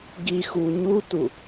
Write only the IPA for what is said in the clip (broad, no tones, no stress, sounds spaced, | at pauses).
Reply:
ɡ i x u ɲ u t u